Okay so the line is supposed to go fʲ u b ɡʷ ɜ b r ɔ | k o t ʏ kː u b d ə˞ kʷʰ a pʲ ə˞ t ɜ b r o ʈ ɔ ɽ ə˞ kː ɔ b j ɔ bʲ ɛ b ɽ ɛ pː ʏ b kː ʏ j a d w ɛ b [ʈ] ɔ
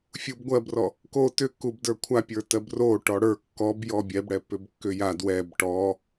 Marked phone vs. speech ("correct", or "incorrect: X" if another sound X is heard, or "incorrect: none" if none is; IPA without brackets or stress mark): correct